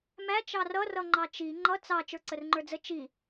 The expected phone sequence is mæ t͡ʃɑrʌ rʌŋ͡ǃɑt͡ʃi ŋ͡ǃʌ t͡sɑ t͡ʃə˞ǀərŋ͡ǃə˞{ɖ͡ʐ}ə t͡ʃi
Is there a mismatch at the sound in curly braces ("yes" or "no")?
yes